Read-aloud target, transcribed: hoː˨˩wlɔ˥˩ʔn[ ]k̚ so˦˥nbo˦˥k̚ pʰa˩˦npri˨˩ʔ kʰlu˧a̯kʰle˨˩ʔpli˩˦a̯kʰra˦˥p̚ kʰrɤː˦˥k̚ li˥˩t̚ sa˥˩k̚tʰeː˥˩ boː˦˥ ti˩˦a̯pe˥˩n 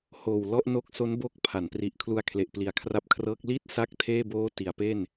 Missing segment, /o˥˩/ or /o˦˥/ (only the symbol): o˦˥